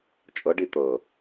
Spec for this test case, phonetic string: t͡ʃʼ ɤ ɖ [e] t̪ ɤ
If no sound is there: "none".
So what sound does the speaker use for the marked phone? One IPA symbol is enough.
i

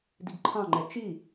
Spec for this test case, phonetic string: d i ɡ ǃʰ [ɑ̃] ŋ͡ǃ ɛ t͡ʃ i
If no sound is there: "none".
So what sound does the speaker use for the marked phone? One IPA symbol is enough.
ɑ̃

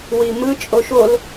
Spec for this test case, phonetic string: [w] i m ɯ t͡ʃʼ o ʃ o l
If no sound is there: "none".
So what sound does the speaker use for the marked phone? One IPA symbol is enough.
w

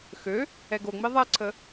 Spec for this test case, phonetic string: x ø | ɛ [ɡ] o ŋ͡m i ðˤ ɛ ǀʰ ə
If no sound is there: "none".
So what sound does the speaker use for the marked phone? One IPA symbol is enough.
ɡ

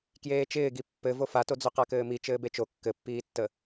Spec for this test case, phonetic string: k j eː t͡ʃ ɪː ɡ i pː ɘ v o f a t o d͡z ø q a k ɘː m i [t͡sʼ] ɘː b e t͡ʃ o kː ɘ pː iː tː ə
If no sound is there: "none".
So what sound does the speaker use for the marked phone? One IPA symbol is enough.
t͡ʃ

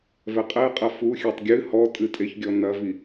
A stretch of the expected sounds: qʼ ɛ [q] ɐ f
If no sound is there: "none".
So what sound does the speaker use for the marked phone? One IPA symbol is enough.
qʼ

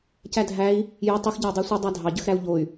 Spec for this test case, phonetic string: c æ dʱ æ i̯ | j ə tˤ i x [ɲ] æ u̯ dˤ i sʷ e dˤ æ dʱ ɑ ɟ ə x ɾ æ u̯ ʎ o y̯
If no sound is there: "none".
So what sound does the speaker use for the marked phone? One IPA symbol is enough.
ɟ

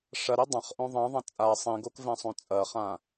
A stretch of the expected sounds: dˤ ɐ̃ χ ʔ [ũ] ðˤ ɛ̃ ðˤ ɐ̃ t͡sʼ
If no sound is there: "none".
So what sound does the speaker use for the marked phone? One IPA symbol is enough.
õ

